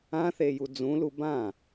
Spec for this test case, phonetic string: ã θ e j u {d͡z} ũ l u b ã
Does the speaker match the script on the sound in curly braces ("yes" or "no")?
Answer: yes